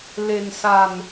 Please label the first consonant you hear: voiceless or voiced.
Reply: voiced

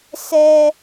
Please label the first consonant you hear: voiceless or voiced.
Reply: voiceless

